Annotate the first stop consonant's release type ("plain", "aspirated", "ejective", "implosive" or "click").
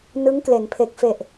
plain